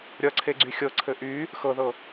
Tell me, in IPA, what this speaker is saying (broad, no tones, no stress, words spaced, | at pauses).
ɾʲʌǀʰeɡ͡ǀy xʲɤǀʰɘ ʔy | xɤðɤ